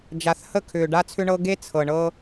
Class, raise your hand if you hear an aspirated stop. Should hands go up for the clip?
yes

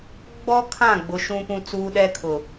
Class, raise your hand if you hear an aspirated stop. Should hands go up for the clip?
yes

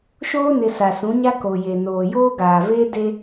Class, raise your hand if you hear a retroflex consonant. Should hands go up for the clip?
no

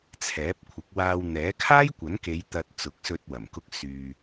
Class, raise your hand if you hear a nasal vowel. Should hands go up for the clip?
no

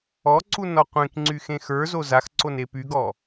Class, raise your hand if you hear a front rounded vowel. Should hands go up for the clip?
yes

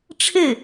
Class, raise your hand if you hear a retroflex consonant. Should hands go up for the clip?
yes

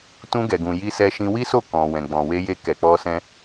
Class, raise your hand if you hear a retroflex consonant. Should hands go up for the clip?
no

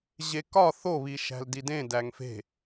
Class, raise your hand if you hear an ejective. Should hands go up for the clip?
no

